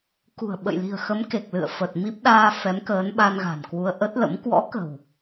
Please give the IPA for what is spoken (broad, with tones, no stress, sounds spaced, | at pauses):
k ṳ˨˩ ə̯ ɓ ə̰˧˨ j l i̤˨˩ ə̯ x ə˨˦ m k e˨˩ k̚ l ɨ̰˧˨ ə̯ f ə˨˩ t̚ m i˦˥ p̚ ɗ aː˧ f ɛ˨˦ m k əː˨˦ n ɓ a˧ n ɣ a̤˨˩ n k w u˧ ə̯ ʔ ə˦˥ t̚ l ə̰˧˥ m k w ɔ̰˧˥ k ə̤˨˩ w